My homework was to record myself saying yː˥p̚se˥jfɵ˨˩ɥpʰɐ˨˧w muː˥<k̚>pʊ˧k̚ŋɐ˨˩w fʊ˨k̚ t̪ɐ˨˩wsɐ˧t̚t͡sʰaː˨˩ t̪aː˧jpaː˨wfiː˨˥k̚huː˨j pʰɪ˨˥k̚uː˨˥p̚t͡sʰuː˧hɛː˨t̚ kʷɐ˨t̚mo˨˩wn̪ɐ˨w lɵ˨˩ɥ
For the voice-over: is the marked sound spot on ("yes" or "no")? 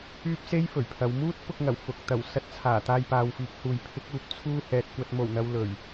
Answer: no